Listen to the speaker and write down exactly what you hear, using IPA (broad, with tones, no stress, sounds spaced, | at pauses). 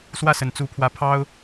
s w ä˥˨ s ə˩ n t͡s u˨˦ pʰ w ä˨˦ pʰ ɑ˦ ʊ̯